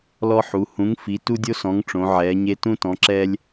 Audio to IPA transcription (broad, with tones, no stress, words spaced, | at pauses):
lɔ˦ ħu˨˦ hũ˨˦ŋfi˨˦ tu˦dʲo˦sɔ̃˨˦ŋ ʈ͡ʂõ˨˦ʕɛː˨˦ɲe˦ tũ˦tɔ̃˨˦ǁɛː˦lʲ